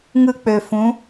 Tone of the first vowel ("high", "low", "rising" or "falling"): high